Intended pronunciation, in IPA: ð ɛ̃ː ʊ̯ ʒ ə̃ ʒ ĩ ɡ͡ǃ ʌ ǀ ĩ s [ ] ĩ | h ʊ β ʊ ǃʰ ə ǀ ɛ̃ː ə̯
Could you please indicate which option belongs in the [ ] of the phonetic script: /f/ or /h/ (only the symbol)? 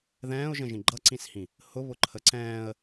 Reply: h